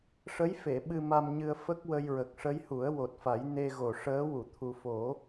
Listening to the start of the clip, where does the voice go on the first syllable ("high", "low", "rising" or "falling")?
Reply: rising